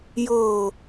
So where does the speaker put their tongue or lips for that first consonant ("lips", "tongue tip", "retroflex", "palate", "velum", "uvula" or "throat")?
palate